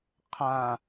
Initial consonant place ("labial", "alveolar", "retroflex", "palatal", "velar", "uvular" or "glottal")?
uvular